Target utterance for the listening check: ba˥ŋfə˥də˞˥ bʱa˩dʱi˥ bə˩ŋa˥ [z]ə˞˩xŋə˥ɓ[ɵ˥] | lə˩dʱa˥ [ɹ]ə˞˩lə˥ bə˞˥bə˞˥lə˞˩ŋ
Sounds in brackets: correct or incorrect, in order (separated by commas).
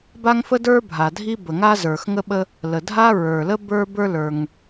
correct, incorrect, correct